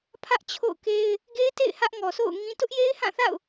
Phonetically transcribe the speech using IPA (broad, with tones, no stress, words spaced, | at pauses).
pʰä˦ʔt͡ɕʰo̰˦˨ʊ̯ke˦ɪ̯ | ɡe˦ɪ̯tḛ˦˨ɪ̯ hä˦ʔŋɔ˨so̰˦˨ʊ̯ŋĩ˦ tʊ˦ʔje˦ɪ̯hã˦˨θa̰˦˨ʊ̯